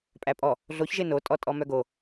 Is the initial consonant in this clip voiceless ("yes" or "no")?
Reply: yes